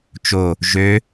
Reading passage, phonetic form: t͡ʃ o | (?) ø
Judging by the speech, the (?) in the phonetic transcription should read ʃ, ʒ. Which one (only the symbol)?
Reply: ʒ